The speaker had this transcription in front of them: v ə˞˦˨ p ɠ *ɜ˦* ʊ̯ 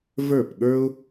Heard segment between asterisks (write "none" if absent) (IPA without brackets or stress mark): ə˞˦